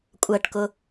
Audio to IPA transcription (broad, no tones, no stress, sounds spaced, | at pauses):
kʷʼ ɜ ʈ k ʊ